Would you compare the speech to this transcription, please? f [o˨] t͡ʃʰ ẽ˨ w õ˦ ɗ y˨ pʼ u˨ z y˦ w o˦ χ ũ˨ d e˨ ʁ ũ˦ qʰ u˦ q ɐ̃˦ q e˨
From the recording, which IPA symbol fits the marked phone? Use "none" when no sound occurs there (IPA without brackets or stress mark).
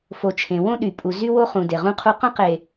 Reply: o˨